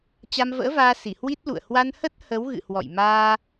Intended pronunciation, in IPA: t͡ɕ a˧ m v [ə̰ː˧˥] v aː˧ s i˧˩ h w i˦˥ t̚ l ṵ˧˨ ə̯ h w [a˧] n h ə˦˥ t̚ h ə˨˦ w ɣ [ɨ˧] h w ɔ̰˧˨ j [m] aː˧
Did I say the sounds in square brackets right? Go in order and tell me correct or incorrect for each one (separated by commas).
correct, correct, incorrect, correct